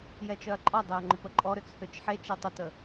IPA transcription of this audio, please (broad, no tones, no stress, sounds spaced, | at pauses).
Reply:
j ɛ t͡ʃ œ ɐ̯ ǃʼ ɔ dˤ ø ɐ̯ ŋ͡ǃ ʊ p ə ǃʼ ɔ ɾ ø t͡s h ø t͡ʃ ħ e t͡ʃ e tˤ ʊ t ə